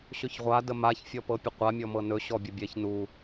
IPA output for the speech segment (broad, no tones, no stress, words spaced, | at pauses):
ɕɵçʁʷa dəmaç fʲɔpɤpʲəqʷa mʲɔmɤnɵ ɕɔbʲəbʲɛç nu